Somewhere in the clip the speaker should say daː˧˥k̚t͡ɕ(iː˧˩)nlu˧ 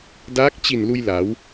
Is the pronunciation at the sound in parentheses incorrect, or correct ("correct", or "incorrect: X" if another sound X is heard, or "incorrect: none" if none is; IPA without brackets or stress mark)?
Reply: incorrect: i˧˩